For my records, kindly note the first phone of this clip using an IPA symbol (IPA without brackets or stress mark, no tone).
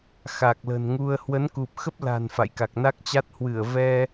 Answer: x